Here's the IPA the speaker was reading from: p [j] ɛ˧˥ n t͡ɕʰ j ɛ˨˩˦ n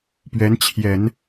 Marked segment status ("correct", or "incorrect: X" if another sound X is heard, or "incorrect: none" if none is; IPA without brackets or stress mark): incorrect: ɥ